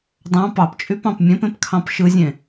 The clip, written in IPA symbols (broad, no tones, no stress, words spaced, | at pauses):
dˤɑ̃ pɑpt͡ʃʼypɑ̃p mʲẽpẽpkʰɑ̃p ʃɯzʲẽ